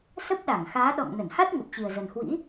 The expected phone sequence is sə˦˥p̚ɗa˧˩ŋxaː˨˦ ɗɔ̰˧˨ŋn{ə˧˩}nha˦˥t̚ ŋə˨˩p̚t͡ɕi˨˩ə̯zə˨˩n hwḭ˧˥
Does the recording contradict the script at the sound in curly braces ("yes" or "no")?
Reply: no